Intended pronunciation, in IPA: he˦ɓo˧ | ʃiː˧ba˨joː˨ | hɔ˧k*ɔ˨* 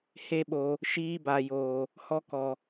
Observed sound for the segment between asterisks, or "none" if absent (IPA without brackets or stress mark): ɔ˨